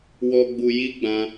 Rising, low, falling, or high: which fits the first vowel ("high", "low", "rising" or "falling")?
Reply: low